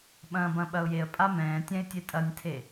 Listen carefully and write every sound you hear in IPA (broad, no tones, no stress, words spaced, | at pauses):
ɓɐ̃ːbɐ̃ɓɐʊ̯jeə̯ pʼamɛ̃ː tʲɛ̃ɪ̯tʲetʼɐnʲtʰe